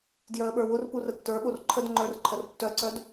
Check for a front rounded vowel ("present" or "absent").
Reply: present